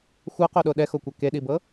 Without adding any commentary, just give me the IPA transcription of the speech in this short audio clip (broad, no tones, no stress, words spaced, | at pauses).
xʷɤqoɗo ɗɛxokʷɛ keɗibɤ